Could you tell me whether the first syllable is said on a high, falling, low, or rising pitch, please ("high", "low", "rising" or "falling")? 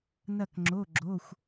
falling